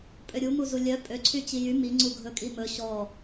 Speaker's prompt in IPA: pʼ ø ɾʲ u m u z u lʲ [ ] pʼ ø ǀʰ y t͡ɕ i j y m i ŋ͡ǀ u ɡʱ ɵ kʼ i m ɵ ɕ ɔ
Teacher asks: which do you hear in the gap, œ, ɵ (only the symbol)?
œ